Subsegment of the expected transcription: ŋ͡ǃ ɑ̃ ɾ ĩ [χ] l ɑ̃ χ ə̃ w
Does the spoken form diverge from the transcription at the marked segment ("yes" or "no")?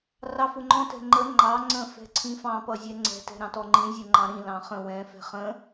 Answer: yes